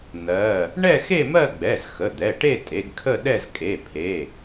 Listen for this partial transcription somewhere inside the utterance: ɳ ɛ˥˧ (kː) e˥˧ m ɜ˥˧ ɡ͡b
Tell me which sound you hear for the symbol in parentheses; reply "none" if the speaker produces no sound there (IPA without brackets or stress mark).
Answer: x